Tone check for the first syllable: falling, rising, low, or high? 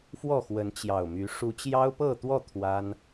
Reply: falling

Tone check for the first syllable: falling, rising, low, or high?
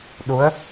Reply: rising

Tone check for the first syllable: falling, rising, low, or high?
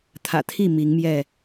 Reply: low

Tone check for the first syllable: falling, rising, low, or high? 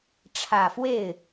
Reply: low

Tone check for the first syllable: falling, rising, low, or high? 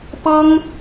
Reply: high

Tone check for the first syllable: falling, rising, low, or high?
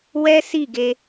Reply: high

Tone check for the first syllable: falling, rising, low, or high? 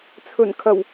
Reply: low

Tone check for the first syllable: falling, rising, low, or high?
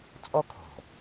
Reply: high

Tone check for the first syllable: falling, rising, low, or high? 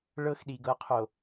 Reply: high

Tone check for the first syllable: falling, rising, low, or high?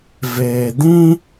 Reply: low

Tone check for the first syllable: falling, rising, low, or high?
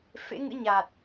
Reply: rising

